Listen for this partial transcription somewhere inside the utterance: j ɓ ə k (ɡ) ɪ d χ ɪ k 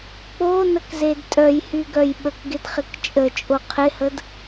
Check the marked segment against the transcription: correct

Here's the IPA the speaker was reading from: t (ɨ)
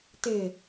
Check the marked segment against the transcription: incorrect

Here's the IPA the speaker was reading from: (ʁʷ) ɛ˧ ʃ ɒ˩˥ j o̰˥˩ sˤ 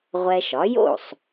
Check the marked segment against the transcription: correct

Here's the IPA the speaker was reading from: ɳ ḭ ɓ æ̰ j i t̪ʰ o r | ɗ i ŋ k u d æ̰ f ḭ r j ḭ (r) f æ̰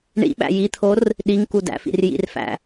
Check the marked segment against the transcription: correct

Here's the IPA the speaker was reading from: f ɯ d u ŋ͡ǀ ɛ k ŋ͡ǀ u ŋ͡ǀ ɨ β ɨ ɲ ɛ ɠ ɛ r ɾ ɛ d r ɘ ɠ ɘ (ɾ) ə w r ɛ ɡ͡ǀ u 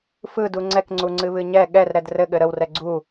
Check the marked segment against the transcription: correct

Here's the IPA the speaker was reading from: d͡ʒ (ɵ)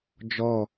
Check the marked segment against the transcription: incorrect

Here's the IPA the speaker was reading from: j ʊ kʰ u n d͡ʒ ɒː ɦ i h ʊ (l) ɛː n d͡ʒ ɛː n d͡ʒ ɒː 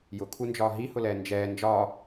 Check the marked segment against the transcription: correct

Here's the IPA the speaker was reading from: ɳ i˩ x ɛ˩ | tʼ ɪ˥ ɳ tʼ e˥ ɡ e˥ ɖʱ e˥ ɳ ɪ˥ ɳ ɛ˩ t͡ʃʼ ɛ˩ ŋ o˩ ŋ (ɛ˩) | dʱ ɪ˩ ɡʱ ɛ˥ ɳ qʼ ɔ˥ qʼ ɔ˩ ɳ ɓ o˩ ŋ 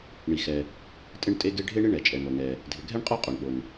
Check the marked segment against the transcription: correct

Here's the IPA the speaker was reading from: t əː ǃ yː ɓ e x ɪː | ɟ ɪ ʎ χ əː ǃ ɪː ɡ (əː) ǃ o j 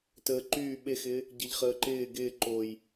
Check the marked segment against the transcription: incorrect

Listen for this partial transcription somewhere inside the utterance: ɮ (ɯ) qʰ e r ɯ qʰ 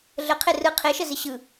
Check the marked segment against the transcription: incorrect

